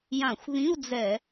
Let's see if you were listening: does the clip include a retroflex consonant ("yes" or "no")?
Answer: no